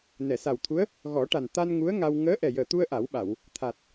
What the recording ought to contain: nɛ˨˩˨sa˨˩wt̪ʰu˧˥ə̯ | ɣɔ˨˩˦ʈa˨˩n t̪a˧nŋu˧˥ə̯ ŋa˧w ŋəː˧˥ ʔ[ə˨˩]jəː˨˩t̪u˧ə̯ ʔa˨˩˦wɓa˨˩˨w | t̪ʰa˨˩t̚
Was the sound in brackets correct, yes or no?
no